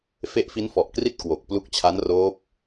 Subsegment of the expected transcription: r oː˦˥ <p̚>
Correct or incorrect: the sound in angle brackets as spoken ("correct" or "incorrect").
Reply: correct